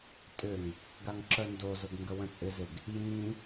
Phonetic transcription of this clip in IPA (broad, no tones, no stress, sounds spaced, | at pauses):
tʼ ʏ ŋ | ɡ a ŋ ǁ œ n d o z ʊ ɡ ŋ ɡ ə w ə̃ t͡sʼ ɪ z ɪ ɡ | j ĩ